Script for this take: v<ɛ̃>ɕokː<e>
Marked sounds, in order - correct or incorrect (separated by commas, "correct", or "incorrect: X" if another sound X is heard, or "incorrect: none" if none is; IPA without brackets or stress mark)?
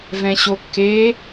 correct, correct